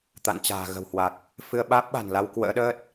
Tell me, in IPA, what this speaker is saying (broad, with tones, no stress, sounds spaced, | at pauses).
t̪ a̰˧˨ n t͡ɕ a̤ː˨˩ ɣ ə̤˨˩ w h w a˨˩ k̚ | f ɨ˧ ə̯ ɓ aː˦˥ p̚ ɓ a̤˨˩ n l a˧ w k w ə̰ː˧˥ ɗ əː˦˥ t̚